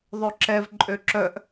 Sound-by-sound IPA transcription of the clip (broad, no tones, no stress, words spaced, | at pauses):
ðˤøǁɛv ǃʼøǁœʔ